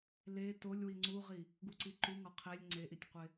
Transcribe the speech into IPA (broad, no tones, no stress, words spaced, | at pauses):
le tolʲwi ŋ͡ǀuʁi | ɡuǀiǃuŋɒ qʰelʲ ŋ͡ǀeʔitʲqʷe